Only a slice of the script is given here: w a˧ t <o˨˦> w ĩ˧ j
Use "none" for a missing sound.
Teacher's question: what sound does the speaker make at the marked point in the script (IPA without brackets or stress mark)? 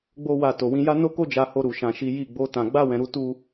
o˨